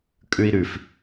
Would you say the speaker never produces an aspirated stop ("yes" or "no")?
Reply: yes